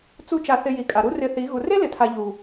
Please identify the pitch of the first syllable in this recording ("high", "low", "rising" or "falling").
high